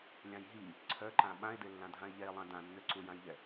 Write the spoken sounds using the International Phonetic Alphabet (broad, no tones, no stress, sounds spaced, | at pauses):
lʲ ã j ɦ i | ǀʰ œ ǃ ã ɓ ã e̯ d e lː ã dʱ ã e̯ ʎ ɛ e̯ lˠ ã d ã nː ø ǀ u j ã j ʎ ɛ